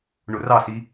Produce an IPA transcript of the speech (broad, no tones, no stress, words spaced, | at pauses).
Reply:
ɳʊrɑsi